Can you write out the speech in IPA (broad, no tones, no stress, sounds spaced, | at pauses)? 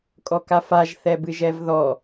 kʼ ɔ k a f a ʒ θ ɛ b ɨ ʒ ɛ v ð ɔ